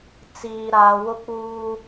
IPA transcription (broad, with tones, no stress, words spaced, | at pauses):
t͡siː˨ɾaː˨ wʊ˦k͡puː˦